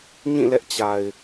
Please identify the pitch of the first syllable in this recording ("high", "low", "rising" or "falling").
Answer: falling